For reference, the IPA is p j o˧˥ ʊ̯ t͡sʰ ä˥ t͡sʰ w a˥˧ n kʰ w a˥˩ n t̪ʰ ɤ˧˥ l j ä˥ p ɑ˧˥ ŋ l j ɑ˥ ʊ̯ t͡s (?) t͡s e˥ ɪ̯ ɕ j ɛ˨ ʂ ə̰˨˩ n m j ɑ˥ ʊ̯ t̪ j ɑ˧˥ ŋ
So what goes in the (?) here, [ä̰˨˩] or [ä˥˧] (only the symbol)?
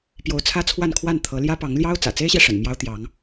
ä̰˨˩